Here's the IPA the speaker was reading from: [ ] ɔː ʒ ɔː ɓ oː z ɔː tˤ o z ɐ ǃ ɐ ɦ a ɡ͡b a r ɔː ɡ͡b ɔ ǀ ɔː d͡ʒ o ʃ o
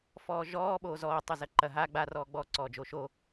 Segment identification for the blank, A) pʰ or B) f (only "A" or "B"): B